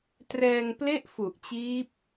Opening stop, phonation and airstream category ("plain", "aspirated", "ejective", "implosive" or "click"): plain